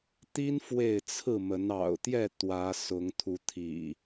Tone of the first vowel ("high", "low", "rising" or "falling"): high